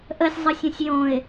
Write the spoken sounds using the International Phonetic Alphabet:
ʔ ə sʲ zˤ ə sʲ õ sʲ j õ ɪ̯

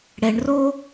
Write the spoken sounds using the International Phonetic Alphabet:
ɽ ɛ ɳ r o

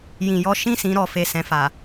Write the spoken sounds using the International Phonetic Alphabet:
j ĩ˧ j ɔ˦ ʃ ĩ˦˨ s ĩ˧ ɾ ɔ˨ f e˨ s ɛ̃˨ f a˨

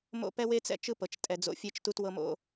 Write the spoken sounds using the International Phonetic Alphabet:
m o̰˦ p ɛ˦ w e˦ t͡s ɛ̰˦ t͡ʃ ɯ˦ p ɤ˨ t͡ʃ tʼ ɛ˨ d͡z o̰˦ fʲ e˦ t͡ʃ t u˦ t w ɤ˦ m o̰˦

